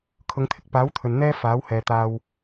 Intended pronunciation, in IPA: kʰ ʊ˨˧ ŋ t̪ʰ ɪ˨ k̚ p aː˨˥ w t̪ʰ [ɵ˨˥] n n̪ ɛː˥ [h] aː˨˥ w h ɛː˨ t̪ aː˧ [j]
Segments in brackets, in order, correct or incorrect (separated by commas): incorrect, incorrect, incorrect